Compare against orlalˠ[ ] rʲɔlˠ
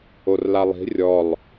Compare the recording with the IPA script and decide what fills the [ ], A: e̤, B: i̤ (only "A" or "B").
B